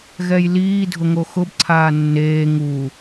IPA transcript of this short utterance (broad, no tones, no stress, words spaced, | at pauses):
ɣɛjliːdʱʊ ŋoxʊbǀʰaː nːeː ŋu